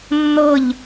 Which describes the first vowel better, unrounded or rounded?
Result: unrounded